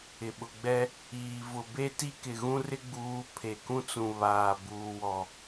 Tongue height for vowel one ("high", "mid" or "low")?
high